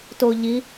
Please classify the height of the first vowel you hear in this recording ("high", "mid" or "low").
mid